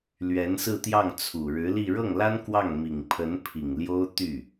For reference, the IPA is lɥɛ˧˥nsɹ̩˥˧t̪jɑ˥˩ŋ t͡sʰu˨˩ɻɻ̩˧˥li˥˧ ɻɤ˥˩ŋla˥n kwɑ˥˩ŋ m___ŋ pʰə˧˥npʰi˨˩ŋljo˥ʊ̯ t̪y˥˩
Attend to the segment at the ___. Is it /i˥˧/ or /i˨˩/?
i˨˩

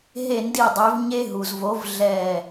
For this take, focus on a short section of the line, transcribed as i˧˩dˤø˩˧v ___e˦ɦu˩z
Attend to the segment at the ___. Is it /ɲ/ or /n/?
ɲ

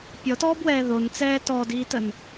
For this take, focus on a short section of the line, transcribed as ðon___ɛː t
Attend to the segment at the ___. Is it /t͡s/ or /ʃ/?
t͡s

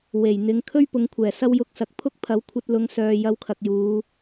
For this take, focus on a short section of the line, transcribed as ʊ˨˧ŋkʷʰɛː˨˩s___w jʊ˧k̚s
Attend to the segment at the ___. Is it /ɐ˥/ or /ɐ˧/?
ɐ˥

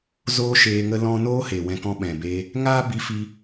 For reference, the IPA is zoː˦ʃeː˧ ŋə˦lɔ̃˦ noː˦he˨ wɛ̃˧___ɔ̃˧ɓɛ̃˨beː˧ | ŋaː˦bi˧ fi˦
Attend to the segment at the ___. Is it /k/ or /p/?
k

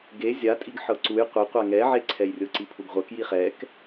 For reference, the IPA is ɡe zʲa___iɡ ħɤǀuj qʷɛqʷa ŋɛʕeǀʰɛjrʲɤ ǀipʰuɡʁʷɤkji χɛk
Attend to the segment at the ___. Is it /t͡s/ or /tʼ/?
tʼ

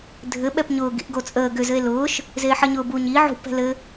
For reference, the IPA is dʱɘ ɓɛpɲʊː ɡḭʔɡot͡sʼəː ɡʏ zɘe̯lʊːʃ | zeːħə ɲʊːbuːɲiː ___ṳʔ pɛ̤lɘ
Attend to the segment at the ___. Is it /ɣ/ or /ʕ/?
ʕ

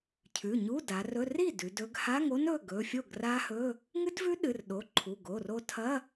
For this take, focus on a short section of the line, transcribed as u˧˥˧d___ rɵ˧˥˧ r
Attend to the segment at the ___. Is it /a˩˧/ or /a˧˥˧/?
a˩˧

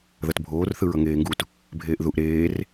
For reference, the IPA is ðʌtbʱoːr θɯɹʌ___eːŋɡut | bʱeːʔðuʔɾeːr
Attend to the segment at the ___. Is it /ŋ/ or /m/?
ŋ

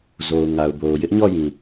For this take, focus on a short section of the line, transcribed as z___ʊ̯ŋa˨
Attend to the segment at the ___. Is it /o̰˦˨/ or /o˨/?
o˨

